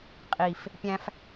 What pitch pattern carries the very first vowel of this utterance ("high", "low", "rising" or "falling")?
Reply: low